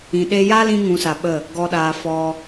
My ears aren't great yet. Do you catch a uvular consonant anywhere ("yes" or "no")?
no